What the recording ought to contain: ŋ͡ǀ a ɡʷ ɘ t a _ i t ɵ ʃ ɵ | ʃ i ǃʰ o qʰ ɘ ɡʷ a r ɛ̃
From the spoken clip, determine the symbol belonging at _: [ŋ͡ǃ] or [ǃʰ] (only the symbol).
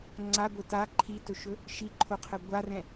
ǃʰ